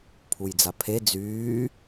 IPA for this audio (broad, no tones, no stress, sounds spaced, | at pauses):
pʰ u j d͡z a pʰ e d͡z yː